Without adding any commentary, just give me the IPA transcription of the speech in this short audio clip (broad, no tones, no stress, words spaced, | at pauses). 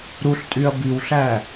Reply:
ɾuɬtʼyɐ̯ biwɬæ